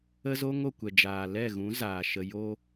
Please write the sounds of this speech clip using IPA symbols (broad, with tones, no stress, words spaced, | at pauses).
ə˦zo˦ŋ o˨kʷɛ˨ d͡ʒaː˨ lɛ˦˨ɣũ˨˦zaː˨ ʃə˨ jo˧